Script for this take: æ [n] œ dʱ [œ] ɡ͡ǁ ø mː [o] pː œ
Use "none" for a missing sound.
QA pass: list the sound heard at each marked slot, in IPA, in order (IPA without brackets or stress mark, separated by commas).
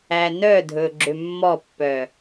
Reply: n, ɵ, ɔ